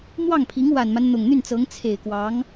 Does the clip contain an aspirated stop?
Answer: yes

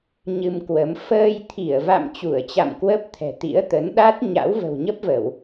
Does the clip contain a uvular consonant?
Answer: no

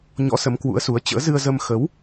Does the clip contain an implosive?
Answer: no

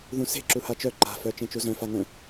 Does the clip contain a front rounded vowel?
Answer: yes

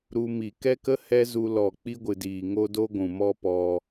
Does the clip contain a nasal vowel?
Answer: yes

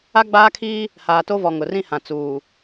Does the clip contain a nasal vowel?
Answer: yes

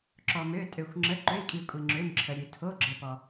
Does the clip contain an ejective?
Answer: yes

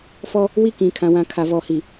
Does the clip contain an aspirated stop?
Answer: yes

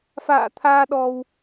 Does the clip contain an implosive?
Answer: yes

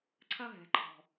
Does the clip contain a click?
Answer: yes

